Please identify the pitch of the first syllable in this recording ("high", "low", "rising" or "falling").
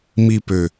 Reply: falling